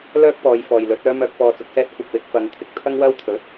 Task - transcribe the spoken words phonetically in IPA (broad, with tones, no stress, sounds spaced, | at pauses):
l œː˥ k̚ p ɔː˨˧ j f ɔː˨ j l ɵ˨˥ t̚ œː˨˧ m œː˨ k̚ f ɔː˨ t͡s ʊ˨ k̚ s ɛː˥ t̚ kʷ ɪ˨ k̚ w ɪ˨˥ k̚ f ɐ˨˧ ŋ t̪ʰ ɪ˨ k̚ t̪ʰ ɐ˥ ŋ w ɐ˥ w t̪ʰ ɵ˨˥ t̚